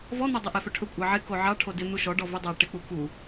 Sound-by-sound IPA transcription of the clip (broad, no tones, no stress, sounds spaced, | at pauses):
v ɔ n̪ o dˤ ɪ ʔ ɛ f ɵ ʈʰ ɵ kʷʼ ɑ ʕ ɪ k o ʕ ɑ ʈʰ o d ɪ n̪ u ʃ ɔ ɖ ɔ v ɵ dˤ ɑ ʈ ɪ k͡p u k u